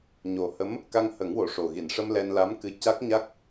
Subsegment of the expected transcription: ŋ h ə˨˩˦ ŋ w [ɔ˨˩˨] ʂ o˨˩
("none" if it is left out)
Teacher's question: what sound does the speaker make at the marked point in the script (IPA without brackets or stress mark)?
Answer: o˨˩˨